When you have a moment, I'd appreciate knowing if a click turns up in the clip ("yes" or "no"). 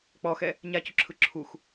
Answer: yes